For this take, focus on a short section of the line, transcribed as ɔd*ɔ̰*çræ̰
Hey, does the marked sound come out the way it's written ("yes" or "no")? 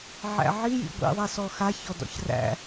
yes